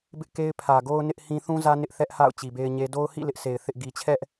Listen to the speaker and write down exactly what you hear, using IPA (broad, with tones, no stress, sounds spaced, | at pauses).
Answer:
b ɪ˦ ʔ k e˦ ɪ̯ pʰ ä˨ ɡ o˦ ʊ̯ n ɪ˦ ʔ h ĩ˦ θ ũ˦ z ä˦ n ɪ˦ ʔ θ ɛ˦ ʔ h a̰˦˨ ʊ̯ t͡ɕ i˨ b e˦ ɪ̯ ɲ e˦ d o˦ ʊ̯ h ḭ˦˨ l ɪ˦ ʔ s e˨ ɪ̯ θ ɪ˦ ʔ ɡ i˨ t͡ɕʰ ɛ˦ ʔ